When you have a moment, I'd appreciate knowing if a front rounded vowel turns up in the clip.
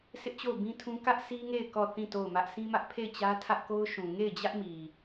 no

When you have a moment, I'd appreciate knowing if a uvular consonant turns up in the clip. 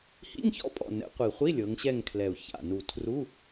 yes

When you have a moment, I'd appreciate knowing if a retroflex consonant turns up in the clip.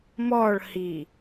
yes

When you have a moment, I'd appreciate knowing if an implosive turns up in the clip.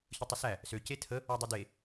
no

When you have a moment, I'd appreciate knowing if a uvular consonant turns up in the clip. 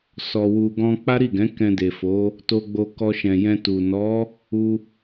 no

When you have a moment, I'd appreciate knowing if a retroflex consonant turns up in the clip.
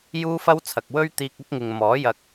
no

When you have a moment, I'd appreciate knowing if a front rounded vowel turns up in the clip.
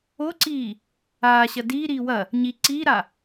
no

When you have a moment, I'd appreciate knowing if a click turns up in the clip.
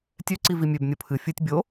yes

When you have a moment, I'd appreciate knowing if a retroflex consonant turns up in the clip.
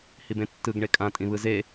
yes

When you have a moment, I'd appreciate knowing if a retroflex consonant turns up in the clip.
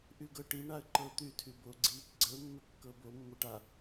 yes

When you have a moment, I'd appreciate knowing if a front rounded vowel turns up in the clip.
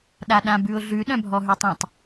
yes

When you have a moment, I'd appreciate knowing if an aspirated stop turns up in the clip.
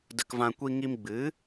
no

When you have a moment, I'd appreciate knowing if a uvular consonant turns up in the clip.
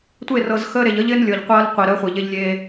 yes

